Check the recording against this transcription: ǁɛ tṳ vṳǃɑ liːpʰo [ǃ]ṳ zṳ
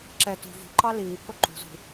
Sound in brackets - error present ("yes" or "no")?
no